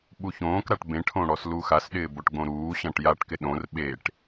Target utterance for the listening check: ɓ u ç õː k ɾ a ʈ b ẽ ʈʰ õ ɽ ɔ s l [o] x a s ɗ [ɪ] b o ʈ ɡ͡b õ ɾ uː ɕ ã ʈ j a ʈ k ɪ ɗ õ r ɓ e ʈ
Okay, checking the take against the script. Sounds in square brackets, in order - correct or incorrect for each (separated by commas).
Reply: incorrect, incorrect